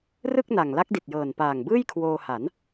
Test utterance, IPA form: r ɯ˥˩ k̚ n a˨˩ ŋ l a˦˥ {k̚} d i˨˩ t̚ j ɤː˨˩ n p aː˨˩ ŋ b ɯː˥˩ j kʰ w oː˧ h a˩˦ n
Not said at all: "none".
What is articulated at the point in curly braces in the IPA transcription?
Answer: k̚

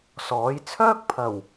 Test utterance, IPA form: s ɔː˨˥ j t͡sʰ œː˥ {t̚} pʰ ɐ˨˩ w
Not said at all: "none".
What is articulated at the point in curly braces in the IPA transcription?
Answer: k̚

